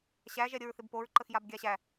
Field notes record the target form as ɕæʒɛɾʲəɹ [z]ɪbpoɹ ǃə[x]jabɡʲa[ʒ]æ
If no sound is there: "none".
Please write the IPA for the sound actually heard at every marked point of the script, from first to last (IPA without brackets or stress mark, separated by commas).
θ, x, ɕ